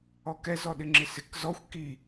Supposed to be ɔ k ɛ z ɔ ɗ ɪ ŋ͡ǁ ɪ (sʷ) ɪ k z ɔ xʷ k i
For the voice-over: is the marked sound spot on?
no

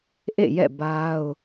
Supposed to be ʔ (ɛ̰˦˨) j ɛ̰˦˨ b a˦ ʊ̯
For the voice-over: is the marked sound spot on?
no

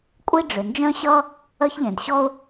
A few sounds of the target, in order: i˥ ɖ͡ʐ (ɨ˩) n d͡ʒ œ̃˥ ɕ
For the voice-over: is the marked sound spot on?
no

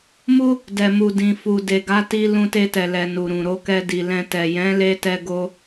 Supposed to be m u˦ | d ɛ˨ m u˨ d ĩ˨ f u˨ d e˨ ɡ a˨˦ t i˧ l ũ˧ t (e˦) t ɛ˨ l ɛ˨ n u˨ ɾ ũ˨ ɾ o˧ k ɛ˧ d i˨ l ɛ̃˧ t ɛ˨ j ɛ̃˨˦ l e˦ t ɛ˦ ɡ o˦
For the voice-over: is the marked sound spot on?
no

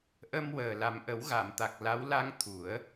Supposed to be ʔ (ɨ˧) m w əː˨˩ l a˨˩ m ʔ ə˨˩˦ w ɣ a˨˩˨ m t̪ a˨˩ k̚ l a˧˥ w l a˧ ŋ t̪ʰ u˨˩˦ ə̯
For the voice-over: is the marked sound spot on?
no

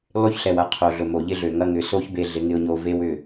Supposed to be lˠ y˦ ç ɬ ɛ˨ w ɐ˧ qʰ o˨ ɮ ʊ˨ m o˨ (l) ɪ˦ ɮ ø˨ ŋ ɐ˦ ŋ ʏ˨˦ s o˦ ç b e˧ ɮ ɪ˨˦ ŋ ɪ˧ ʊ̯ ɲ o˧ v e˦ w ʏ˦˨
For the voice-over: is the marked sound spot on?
no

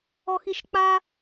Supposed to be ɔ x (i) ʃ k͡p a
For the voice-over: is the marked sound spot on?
yes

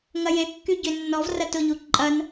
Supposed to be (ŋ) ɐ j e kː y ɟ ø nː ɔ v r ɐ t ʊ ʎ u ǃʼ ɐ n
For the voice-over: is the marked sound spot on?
yes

